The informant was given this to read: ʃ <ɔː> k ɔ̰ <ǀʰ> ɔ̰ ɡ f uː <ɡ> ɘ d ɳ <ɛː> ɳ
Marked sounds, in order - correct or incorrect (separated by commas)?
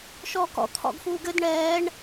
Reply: correct, incorrect, correct, correct